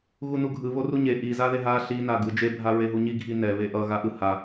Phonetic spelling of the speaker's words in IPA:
ɣunuɡʱɯ βoruɲe ʔi zaðeɦa ɬi naɡɯd͡ʒe bʱaɹeɦuɲi ɡʱinɛ βeʔʌ ɣaʔɯ ha

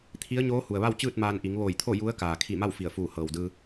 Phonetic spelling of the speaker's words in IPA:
t̪ʰi˧˥ə̯ɲoː˧˥ hu˩ə̯ʋa˥˨wt͡ɕɯː˥˨t̚ maː˧n ʔi˩˧ŋʋoː˧˩jt̪ʰo˥˨ ju˧˥ə̯ kaː˩kʰi˧˩ma˥˨w fi˧˩ə̯fuː˧˩ hɤː˩wdɯː˧

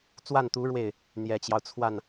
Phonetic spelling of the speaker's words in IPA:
t͡swa˥˩nt̪u˧˥ ɻwe˥˩ɪ̯ | n̪jɛ˨˩t͡ɕjɑ˦ʊ̯t͡sʰwa˥˩n

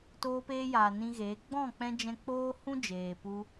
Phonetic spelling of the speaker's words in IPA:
toː˧peː˧jaː˨ nĩ˧ɣeː˨˦ ɡ͡bɔ̃˦˨k͡pɛ̃˧ d͡ʒɛ̃˧k͡poː˦hũ˦ d͡ʒeː˨pu˧

